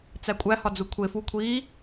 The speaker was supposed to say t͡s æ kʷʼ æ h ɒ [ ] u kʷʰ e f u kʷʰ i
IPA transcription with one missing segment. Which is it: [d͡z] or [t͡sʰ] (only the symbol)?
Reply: d͡z